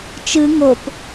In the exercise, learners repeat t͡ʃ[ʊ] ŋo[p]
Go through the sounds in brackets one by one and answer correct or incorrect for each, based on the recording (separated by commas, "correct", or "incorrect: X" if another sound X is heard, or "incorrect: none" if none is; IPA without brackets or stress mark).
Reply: incorrect: ɯ, correct